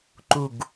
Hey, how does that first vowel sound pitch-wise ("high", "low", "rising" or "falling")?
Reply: falling